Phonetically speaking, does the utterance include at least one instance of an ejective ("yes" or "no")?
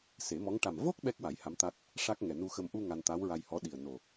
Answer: no